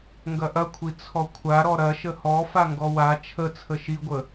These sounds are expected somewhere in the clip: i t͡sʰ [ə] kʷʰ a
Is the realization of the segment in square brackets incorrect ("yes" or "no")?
yes